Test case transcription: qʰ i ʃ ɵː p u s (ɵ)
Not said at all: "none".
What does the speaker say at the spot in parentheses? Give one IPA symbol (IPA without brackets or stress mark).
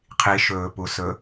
ɵ